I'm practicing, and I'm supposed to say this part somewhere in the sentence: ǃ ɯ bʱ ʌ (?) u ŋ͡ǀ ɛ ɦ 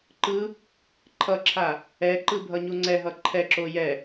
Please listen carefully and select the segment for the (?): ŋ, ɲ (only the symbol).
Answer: ɲ